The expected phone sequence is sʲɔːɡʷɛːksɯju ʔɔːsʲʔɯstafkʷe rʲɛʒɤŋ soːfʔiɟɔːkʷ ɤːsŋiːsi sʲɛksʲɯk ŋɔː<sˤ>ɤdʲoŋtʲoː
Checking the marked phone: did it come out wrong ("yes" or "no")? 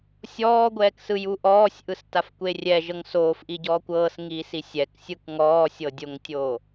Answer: yes